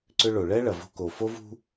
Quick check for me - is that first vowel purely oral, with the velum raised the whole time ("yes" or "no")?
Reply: yes